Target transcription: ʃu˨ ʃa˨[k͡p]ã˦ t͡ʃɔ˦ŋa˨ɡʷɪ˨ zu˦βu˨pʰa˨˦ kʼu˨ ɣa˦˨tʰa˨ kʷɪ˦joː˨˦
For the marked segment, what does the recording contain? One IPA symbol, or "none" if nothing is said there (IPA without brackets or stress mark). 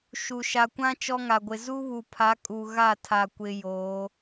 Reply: kʷ